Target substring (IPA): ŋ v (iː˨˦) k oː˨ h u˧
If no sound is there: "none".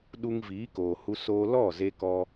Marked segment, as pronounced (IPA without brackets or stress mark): iː˨˦